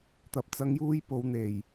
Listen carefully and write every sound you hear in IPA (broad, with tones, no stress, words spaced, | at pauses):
t̪ɐ˨p̚t͡sɐ˨˧ŋjuː˧j po˨˧wn̪e˨˩j